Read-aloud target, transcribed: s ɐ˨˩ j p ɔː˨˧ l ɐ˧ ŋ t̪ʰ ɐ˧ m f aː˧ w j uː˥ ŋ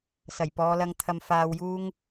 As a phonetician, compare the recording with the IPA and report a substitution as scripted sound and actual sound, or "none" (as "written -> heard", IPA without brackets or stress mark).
none